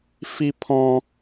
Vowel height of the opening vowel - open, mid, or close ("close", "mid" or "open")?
close